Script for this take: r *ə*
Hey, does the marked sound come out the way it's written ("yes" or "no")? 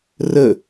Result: yes